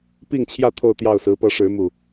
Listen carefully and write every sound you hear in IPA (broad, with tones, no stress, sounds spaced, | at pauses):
p i˥˨ ŋ t͡ɕʰ j ä˥˨ t̪ʰ o˥˨ ʊ̯ t̪ j ɑ˥˨ ʊ̯ s ɹ̩˨˦ p ɤ˨˦ ʂ ɻ̩˨˦ m u˨˩